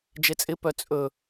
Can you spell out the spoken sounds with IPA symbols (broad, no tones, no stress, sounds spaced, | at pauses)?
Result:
d͡ʒ e t͡sʼ ɪ p œ t͡sʼ ɵ